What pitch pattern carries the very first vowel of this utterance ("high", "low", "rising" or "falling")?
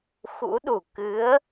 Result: rising